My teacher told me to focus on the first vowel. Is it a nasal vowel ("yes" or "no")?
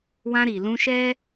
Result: yes